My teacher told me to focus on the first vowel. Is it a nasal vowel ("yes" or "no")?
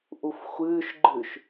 no